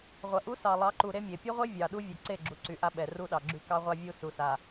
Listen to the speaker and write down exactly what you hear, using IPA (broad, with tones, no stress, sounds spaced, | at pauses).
ʁʷ ɐ˨ ʔ u˦ s ɑ˨ lˠ ɑ˨˦ ǃ u˨ ɾ e˦ mʲ e˨ pʲ u˦ ʁʷ e˦ vʲ ɑ˨ ɗ u˦ vʲ ɛ˨ ǀ e˦˨ ɡ͡ǁ u˨ ǀ y˨ ʔ a˦ ɓ ɛ˨ r u˦ ɗ ɑ˨ ɡ͡ǁ y˦ k ɑ˦ ʁʷ a˦ vʲ u˦ s u˨ s a˨